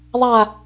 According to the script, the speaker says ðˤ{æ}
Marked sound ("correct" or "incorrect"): incorrect